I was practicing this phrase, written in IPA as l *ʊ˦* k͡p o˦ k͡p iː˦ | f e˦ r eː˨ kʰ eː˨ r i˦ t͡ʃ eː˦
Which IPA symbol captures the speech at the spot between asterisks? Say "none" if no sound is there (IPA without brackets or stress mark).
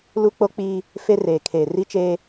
u˦